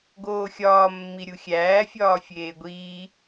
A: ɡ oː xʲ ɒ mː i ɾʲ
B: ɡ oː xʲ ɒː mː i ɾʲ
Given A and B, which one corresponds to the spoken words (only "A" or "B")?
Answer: B